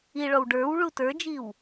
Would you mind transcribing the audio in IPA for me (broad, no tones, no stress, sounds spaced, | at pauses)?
i ɭ ɔ w ɖ ə˞ w ɭ u t ə˞ d͡ʒ i w